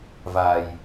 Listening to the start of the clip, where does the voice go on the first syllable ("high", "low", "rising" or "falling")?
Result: low